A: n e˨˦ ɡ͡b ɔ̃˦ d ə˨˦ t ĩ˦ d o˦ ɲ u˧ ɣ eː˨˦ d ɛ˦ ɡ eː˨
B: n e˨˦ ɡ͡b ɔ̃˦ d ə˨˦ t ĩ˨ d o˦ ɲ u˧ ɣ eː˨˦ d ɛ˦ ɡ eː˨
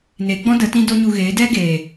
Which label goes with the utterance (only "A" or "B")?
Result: A